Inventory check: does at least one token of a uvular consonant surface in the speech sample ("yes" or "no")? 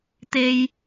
no